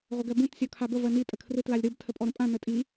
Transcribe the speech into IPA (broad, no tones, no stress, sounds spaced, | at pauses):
ʁʷ ə ɡ ɜ b ũ t sʲ ɔ kʰ a b ə v ɜ n i tʼ ə kʰ r ɯ t l a lʲ ɾ ɯ b tʰ ə pʼ ɔ ɾ ə̃ pʼ ã n ə tʼ i